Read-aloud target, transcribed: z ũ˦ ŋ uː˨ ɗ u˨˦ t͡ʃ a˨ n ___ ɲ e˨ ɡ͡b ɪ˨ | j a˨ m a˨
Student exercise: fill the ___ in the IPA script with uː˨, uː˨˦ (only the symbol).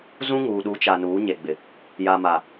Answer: uː˨˦